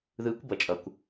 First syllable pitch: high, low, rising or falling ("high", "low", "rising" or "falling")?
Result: rising